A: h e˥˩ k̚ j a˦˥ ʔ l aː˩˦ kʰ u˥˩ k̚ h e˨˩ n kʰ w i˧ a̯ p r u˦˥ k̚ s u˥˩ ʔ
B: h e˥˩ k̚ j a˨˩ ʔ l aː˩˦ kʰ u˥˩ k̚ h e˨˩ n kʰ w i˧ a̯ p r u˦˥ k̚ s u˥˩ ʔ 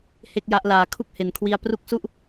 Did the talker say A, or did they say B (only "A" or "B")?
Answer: A